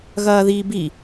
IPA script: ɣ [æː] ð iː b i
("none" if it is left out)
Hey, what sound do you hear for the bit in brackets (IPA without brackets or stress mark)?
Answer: ɐː